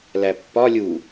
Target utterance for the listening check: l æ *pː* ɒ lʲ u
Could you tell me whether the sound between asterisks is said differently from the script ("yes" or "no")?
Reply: no